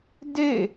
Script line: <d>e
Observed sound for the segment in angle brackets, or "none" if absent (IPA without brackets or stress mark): d